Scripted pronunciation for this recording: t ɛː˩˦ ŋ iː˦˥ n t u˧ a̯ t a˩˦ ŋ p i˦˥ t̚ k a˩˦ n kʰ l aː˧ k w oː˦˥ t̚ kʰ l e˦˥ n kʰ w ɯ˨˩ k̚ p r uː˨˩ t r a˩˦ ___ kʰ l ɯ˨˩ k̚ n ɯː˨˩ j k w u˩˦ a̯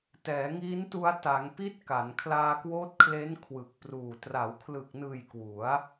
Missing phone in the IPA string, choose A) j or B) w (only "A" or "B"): B